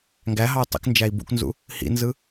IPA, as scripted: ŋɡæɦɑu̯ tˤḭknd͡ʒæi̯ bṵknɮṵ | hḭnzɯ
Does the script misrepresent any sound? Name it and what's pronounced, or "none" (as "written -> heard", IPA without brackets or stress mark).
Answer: ɮ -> z